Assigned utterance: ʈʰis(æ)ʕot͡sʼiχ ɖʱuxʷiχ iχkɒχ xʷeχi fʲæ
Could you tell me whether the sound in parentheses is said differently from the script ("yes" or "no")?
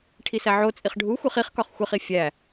no